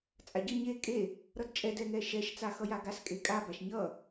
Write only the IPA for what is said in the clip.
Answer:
t͡sʼ a ɟ ʌ ɲ e kʼ e | ɾ ʌ d t͡ʃʼ ɛ d ɛ ŋ ɛ ʃ ɛ ʃ t͡s a x ʌ j a ɡ a s kʼ e kʼ a b a ʃ ɲ ʌ

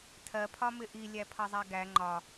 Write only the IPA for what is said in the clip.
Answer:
tʰ ɜ pʰ ɒ m ɪ ʔ i lʲ æ pʰ ʌ zˤ æ ɡ æ ŋ͡ǃ ɒ

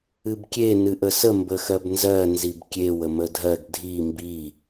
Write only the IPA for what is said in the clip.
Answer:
ɨ b kʲ e n ɨ ʔ ə s ə m b ə x ɜ b n z ɜ n z i b kʲ e w ə m ə dʱ ɜ ɡ dʱ i m b i

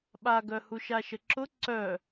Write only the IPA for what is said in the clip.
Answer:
ɓ a ɡ œ h u ʃ a ʃ ə ǁ ʊ ǀ œ

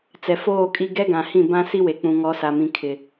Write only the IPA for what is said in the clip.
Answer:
t͡s ɛ˨ f oː˦˨ kʼ i˦ ɡ ɛ˦ ɡ ã˨ h ĩ˦˨ b ã˦ s i˦ w e˨ k͡p ũ˨ ŋ ɔ˨˦ s a˨ m ĩ˨ kʰ ɪ˨

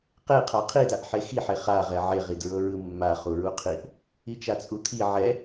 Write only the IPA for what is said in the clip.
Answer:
q e qʰ a qʰ i d a ʔ ħ e x i ħ e χ a ʁ ɛ ʕ e ʁ i d ɹ ɤ ɹ ɯ mː a χ u ɹ u qʰ i ʔ | i t͡ʃ a t͡sʼ u t̪ʰ i ʕ ɛ

